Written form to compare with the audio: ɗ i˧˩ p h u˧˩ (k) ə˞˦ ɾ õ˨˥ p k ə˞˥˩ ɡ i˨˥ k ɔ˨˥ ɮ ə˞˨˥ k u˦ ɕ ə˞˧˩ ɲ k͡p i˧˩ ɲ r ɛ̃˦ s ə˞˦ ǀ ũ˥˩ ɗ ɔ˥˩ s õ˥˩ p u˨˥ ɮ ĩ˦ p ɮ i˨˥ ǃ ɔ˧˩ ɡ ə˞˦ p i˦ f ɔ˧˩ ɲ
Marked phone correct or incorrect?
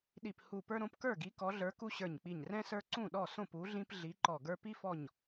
incorrect